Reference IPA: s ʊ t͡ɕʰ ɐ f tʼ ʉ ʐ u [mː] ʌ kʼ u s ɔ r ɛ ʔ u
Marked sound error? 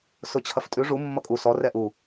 no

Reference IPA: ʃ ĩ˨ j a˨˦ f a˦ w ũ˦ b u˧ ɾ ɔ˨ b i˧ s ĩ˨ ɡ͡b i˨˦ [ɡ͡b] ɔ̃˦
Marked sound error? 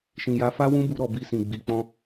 yes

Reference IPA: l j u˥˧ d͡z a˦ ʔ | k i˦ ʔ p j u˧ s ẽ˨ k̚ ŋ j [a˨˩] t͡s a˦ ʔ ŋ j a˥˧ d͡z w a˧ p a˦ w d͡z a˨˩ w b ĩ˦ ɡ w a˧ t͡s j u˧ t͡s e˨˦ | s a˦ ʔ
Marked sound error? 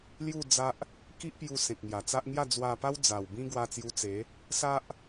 no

